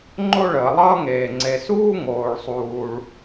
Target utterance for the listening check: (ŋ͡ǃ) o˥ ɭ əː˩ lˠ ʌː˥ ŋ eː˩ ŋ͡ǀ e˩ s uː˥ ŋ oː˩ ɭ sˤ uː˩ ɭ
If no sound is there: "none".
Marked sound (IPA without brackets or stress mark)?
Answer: ŋ͡ǃ